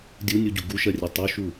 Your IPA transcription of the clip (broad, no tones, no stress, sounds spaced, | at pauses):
dʲ u nʲ u ɟ u ɡ u ʃ ɜ rʲ ɛ tˤ u ʃ u